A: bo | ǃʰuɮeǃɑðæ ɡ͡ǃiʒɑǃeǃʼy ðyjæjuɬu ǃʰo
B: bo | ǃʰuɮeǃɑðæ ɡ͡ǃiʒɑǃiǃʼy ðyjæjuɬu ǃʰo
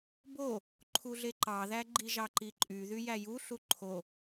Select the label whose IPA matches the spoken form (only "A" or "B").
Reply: B